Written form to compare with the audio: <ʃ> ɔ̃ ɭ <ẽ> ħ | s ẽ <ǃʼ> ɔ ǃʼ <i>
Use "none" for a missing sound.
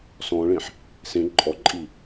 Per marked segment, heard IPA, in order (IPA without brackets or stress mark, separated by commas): s, ẽ, ǃʼ, i